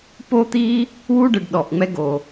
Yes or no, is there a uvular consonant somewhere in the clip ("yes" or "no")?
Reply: no